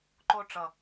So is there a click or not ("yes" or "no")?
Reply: yes